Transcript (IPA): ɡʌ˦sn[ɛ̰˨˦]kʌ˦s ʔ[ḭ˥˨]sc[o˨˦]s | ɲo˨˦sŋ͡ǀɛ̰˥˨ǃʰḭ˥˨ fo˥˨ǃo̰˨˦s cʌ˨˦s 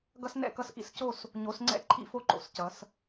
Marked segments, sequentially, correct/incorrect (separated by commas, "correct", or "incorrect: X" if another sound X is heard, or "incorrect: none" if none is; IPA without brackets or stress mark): incorrect: ɛ̰˥˨, incorrect: ḭ˦, incorrect: o˥˨